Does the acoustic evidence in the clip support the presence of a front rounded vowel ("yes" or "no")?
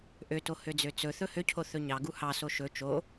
yes